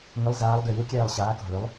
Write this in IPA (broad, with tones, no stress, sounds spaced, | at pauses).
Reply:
ŋ ʏ˨˦ lˠ z aː˨˦ lˠ ɡ ʏ˧˩ j u˨˦ kʲ ɛː˧˩ lˠ ɕ aː˨˦ k o̤˧˩ ɭ ʏ˨˦ lˠ